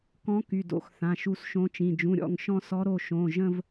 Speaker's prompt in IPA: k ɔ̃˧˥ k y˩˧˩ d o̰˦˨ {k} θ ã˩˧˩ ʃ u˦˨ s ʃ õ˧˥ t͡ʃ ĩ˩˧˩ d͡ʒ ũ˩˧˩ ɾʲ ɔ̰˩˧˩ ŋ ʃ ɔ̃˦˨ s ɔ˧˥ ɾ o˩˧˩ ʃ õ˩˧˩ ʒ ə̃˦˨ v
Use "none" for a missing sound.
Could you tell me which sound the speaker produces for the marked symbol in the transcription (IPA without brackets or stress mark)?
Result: x